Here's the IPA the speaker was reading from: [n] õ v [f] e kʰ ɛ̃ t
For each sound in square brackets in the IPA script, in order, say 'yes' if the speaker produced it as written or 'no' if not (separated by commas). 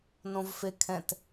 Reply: yes, yes